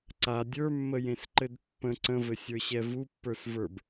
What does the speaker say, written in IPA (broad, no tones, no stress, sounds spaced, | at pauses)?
ǀ a dʲ ə˞ mː ə j ẽ s ǃ ɘ d pː ə̃ ǀ ə̃ v ɘ sʲ ə˞ ɕ ɛ v u pː ə˞ s v ə˞ b